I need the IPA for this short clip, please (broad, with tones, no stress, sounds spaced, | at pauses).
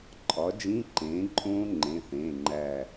ǃʼ ɒ˩˥ d͡ʒ ĩ˧˥˧ ǃ ẽː˩˥ ǃʼ õː˦˥ ŋ͡ǃ ẽ˩˧˩ θ ẽː˩˧˩ ŋ͡ǃ æ˧˩